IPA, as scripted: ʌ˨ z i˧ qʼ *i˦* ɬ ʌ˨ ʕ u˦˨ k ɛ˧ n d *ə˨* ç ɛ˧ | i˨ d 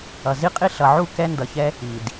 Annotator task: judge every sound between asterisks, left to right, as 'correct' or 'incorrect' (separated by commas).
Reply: incorrect, incorrect